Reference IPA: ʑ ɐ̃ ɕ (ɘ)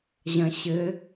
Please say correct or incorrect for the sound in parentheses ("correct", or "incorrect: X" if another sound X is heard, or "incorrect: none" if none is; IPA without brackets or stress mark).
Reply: correct